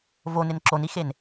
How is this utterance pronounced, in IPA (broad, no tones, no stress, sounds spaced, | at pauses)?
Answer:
v o n ɪ n ǁ o n i x e n